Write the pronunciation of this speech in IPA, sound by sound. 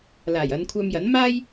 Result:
l aː˨˩ j ɐ˨˧ n kʷʰ œː˧ m j ɐ˨˥ n m aː˥ j

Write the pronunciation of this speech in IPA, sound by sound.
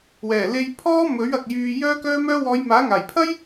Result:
w ɛː˨˩ l e˧ j pʰ ɔː˥ m ɵ˨˥ ɥ ɐ˨ k̚ j yː˧ j œː˥ k œː˥ m œː˥ w ɔː˨˧ j m aː˨˥ ŋ aː˨˩ j pʰ ɐ˥ j

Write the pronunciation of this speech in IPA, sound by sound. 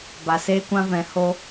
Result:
b a˨ s eː˦ kʷ ã˦ v ɛ̃˨˦ h o˧

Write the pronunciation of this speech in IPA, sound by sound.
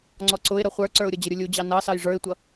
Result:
ŋ͡ǀ ɔ ǀ ʊ ɪ̯ ɾ ʌ χʷ ə˞ ǀ ə˞ ʊ̯ ɾʲ ʌ d͡ʑ ə ɾʲ ʊ lʲ u d͡ʑ ɑ n ɑ s ɑ j ʐ ə˞ ɪ̯ tʷ ʌ

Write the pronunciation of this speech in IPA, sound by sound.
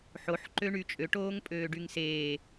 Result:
ħ o ħ ǃ ø ɳ y t͡ʃʼ ø ʈ oː ŋ pʼ øː ɖ y ŋ s eː

